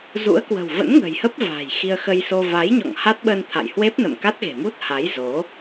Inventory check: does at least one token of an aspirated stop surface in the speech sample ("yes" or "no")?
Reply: yes